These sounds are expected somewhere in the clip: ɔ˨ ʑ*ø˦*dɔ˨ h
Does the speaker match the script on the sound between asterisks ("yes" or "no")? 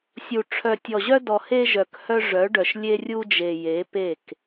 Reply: no